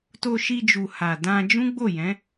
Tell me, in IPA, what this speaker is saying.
t o˧ ʃ i˧ d͡ʒ u˨ h a˨ d ã˧ d͡ʒ ũ˦ ɡ͡b o˦˨ j ɛ̃˨˦

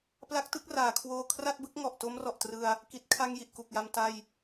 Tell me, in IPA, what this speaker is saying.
p l a˦˥ k̚ t ɯ˥˩ k̚ r aː˩˦ kʰ w oː˧ kʰ r a˥˩ t̚ b ɯ˦˥ k̚ ŋ ɔ˨˩ ʔ t o˦˥ m r ɔ˨˩ ʔ t r ɯ˧ a̯ | k i˨˩ t̚ kʰ a˧ ŋ j i˨˩ ʔ k u˨˩ k̚ j a˧ m t a˥˩ j

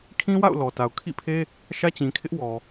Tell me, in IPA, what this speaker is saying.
kʰ ĩ˦ w a̰˦˨ ʊ̯ l ɔ˨ t a˨ ʊ̯ kʰ ḭ˦˨ pʰ e˦ | ʃ ä˦ t͡ɕ ĩ˨ kʰ ɪ˦ ʔ w ɔ˨

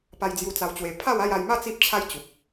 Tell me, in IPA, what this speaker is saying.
p a˧ j d͡z j u˧ t͡s a˧ w t͡ɕ w e˧ pʰ a˥˧ w a˥˧ j a˧ j m a˥˧ t͡s i˦ p̚ t͡ɕʰ a˦ j t͡ɕ u˨ p̚

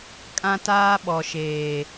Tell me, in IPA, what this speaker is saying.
kʼ ã˦ t aː˦ ɓ ɔ˨ ʃ eː˨

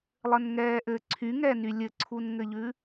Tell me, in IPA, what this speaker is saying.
lˠ ɘ n ŋ ɛː ʔ ɘ ǀʰ y ŋ ɛ n y lʲ ɘ ǀʰ u n ŋ ɘ ʎ ʉ

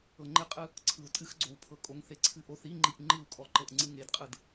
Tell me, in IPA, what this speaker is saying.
ɤ ŋ͡ǃ ɪ qʼ ɯ | ǀʰ ɯ u̯ tʼ ɨ x ɡ͡ǀ o w pʰ ɤ kʼ o ŋ θ e ǀʰ ɨ ʔ o θ i ŋ͡ǃ i ʔ ŋ͡ǃ ɯ u̯ kʼ ɔ ǃ ɤ ʔ ŋ͡ǀ ɨ ŋ e d qʼ ɯ d

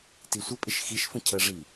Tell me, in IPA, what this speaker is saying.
t i sʷ ə pʼ ɪ ʃ x i ʃ f ə̃ cʰ ə ʐ i

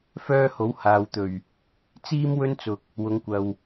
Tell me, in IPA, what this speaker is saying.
f œː˥ h o˨˥ w h aː˨ w t̪ ɵ˨˩ ɥ | t͡s iː˥ m w ɵ˥ n t͡s ʊ˨ k̚ | w ʊ˨˥ ŋ kʷ ɐ˨ w

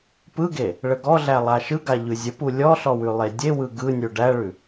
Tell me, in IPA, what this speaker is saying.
p ɯ ɡ e | ɭ ə ɡ ɔ ɮ æ lˠ a ʃ ɯ ɡ a ʎ ʉ zʲ ə p u lʲ ɔ ɬ ɔ w ʉ lˠ e dʲ e w ɯ ɡ ɯ nʲ u ɖ æ ɭ ʉ

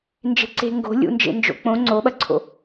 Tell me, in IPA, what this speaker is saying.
n d͡ʒ e̤ ǀ e̤ ŋ ɡ o̤ lʲ ṵ n d͡ʒ ḛ n d͡ʒ o̰ k͡p õ ŋ͡ǀ o ɓ ɐ ǀʰ o̰

